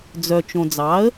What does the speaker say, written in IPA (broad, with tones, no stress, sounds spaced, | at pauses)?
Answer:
d͡z œ˨ t͡ʃ õ˨ d͡z ɑ˩˥ ə̯